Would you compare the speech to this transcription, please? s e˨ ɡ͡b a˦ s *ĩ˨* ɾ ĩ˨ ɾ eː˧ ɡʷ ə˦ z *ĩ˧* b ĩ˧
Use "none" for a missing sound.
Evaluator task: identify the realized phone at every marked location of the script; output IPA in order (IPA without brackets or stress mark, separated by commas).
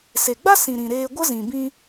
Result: ĩ˨, ĩ˨